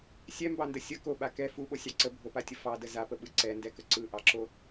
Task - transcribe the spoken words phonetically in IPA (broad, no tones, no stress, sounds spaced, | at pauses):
sʲ ɛ m b ɑ n d ə sʲ ə k o ɓ a k ɛ f u ɓ o sʲ ɑ ǀ ə bʱ o p a tʲ ə f ɑ d ə z a p ə ɓ ɯ ǀ ɛ n d ɛ k ə ǀ ɯ ʔ ɑ ǁ o